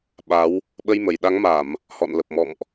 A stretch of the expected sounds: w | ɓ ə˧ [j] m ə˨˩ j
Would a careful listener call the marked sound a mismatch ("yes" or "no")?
no